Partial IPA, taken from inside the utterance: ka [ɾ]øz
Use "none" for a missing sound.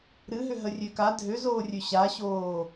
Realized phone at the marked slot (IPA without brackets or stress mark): dʱ